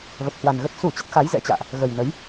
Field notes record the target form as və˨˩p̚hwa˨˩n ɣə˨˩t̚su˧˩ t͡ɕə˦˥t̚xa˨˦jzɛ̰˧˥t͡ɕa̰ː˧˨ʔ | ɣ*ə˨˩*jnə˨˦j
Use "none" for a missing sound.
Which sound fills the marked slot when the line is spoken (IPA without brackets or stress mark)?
ə˨˩